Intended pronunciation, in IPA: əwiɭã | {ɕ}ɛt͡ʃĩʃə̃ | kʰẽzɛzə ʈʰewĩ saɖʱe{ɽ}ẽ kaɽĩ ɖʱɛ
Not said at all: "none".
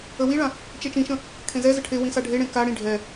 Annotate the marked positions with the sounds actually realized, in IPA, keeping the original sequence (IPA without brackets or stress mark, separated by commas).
t͡ʃ, ɽ